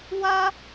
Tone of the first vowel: high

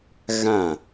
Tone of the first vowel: falling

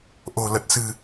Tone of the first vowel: low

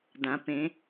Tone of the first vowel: rising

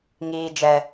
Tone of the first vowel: high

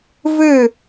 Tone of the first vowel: falling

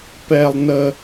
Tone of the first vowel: high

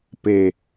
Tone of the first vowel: low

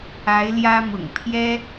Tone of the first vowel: rising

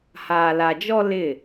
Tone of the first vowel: low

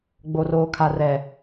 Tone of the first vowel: low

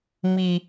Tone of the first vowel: low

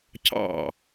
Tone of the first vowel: falling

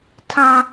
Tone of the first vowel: high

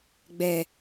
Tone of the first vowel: low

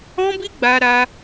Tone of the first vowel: high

